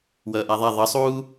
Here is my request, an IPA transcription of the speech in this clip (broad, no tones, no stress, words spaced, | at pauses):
wʌːʔaðˤa ðˤʌsˤuː